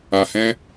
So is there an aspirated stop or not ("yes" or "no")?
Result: no